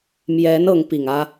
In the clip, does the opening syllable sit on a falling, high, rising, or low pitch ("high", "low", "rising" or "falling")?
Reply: rising